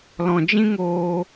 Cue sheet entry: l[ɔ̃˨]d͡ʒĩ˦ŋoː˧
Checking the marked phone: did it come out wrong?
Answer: no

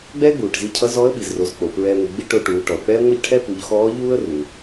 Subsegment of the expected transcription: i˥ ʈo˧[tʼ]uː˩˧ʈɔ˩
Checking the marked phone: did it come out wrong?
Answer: yes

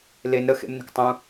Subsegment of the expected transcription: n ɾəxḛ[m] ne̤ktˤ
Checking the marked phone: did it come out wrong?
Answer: no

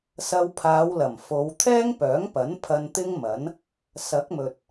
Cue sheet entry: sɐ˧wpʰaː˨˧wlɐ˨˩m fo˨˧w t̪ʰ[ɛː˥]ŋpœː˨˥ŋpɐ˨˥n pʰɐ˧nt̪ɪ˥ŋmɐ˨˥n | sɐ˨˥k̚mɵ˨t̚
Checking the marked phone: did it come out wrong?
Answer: no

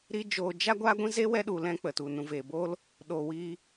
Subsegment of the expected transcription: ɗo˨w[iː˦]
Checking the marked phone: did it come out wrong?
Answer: yes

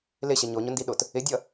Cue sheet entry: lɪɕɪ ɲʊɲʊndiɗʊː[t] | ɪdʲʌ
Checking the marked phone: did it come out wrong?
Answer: no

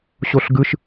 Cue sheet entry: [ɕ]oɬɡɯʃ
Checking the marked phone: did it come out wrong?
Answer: no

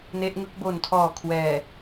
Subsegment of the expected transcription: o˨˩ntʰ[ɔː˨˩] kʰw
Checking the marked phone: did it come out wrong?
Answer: no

